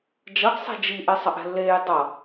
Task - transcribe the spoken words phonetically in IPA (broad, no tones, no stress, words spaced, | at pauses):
d͡ʒʌɡ sˤɛ̤d͡ʒi ʔesˤʌʔɛ̤lːeːj dˤʌ